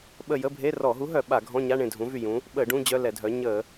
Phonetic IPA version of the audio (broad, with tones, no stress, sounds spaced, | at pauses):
ɓ ə˦˨ j ə˧˥˧ bʱ e˧˥˧ r ɔ˧˩˧ ɦ u˨˥ ɦ œ˧˩˧ ɓ a˧˩˧ ɡʱ ɔ̃˧˥˧ ɲ a˧˥˧ ɳ ẽ˦˨ dʱ ũ˨˥ v y˦˨ j ũ˨˥ | ɓ ə˧˩˧ ɖ ũ˧˥˧ d͡ʑ œ˧˥˧ l ɛ˧˩˧ dʱ œ˨˥ ɲ ə˧˩˧